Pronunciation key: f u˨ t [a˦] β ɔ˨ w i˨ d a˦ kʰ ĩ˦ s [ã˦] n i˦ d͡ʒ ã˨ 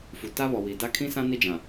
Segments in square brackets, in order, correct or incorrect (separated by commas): correct, correct